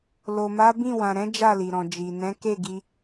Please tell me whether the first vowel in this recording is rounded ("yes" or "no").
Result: yes